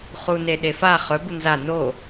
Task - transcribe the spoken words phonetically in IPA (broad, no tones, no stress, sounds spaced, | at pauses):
χ u n e ɗ e f a χ ɵ b u n z a n o